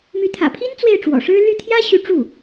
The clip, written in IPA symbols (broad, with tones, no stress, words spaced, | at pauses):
my˧˥t̪ʰä̰˨˩pʰi˥n t͡swe˥˩ɪ̯ʈ͡ʂwɔ̰˨˩ʂɻ̩˥ ly˥˩ t̪ʰjä˥ɕy˧˥ ʈ͡ʂu˥˩